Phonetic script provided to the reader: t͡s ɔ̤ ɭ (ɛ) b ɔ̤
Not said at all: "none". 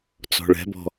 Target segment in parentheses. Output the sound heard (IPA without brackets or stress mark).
ɛ̤